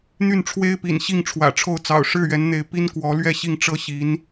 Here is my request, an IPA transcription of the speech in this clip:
n̪ y˥˩ n ʈ͡ʂʰ w e˥ ɪ̯ p ḭ˨˩ n ɕ i˥˩ ŋ ʈ͡ʂʰ w ä̰˨˩ ʈ͡ʂʰ o˥˩ ʊ̯ t͡s ɑ̰˨˩ ʊ̯ ʂ ɻ̩˥˩ ɥ ɛ˧˥ n n̪ e˧˥ ɪ̯ p i˥ n k w ɔ˧˥ l ɥ ɛ˥˧ ɕ i˥˩ ŋ ʈ͡ʂ ɤ˥ ɕ i˧˥ n

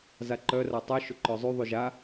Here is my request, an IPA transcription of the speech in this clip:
z a ǃ œ r a tˤ y ʃ ʊ ǃ œ zˤ y ðˤ y ʒ a

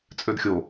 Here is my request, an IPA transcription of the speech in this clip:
t͡sʼ ø d xʲ o

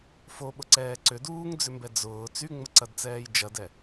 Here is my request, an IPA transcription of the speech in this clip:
f o ɓ ʊ ǀ ɛː ǀ ʏ d uː ŋ d͡z ʏ m b ɛ d͡z ʊː t͡s y ŋ͡m ə ǀ ɐ d t͡s ɛː j d͡ʒ ɐ d ɛ

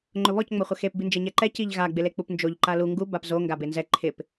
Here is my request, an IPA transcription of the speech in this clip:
ŋ͡ǃ ʊ β ɔ c ŋ͡m o χʷ ɛ x e p b i n d͡ʒ e ɲ ɛ ǃ ɛ c i ʎ ɣ a ɡ͡b ɪ l e k͡p u p n d͡ʒ o ʎ ǃ a l u ŋ ɡ u b a p z o ŋ ɡ a b e n z ɛ ǃʰ ɪ p

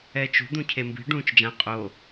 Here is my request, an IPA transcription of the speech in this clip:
ɛː t͡ʃ ṳ d̪ ũ cʰ e m b i̤ ɖ ũː t͡ʃ d͡ʒ ã qʼ o

